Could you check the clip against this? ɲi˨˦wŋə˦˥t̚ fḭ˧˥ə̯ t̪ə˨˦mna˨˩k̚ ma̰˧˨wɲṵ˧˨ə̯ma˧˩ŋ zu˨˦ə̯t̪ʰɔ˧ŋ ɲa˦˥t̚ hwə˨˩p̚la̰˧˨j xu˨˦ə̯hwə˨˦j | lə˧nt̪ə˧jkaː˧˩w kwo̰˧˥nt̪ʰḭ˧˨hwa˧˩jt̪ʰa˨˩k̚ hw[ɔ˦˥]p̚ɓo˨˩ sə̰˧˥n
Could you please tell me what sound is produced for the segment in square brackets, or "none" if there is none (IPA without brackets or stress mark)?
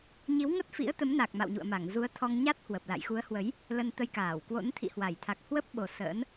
ə˦˥